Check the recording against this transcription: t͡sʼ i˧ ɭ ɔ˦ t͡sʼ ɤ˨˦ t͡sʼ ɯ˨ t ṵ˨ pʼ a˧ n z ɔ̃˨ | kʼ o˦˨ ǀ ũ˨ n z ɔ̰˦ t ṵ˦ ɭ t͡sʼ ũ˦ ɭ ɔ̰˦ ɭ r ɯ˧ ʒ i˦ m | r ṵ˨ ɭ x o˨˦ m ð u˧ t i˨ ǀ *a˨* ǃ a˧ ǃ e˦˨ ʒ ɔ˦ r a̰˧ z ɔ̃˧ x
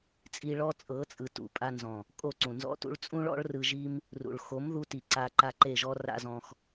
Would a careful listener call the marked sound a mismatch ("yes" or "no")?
yes